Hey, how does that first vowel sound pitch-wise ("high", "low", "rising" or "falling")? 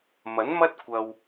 rising